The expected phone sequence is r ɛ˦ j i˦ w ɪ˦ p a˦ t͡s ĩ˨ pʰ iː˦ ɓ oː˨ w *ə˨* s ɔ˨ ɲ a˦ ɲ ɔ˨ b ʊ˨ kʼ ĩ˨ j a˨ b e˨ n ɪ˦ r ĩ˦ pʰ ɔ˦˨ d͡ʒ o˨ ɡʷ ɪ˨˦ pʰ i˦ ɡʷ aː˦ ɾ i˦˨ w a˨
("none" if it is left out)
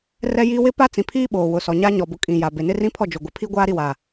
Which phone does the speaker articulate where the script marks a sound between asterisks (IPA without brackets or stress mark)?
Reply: ʊ˨